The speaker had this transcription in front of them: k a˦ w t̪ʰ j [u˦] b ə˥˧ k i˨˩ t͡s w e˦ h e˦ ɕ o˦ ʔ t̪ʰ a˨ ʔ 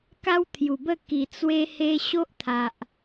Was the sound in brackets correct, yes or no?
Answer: no